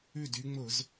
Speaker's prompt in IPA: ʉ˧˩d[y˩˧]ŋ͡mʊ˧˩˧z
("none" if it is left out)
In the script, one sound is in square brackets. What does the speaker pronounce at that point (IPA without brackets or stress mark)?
y˩˧